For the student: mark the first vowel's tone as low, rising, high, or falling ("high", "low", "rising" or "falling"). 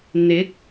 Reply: rising